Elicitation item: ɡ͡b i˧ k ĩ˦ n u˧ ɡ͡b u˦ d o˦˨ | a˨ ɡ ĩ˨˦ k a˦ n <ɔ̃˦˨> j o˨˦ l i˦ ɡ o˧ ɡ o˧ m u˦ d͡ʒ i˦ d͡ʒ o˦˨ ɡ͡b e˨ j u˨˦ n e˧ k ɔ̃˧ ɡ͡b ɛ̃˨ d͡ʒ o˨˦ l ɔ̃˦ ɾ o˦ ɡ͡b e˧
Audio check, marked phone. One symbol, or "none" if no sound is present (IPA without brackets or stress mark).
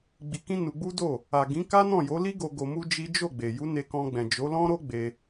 ɔ̃˦˨